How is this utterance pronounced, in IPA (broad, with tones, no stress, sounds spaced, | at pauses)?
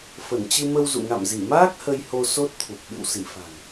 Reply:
f ə˧˩ n t͡ɕ ɨ˧ m ə˧ w z ṵ˧˨ ŋ a̰˧˨ m z i˧˩ m aː˦˥ k̚ h ə˧ j h o˧ s o˦˥ t̚ t̪ʰ u˨˩ p̚ ɓ ɨ̰˧˨ w s i˧˩ f a̤˨˩ ŋ